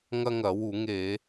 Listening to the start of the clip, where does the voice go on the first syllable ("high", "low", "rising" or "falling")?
high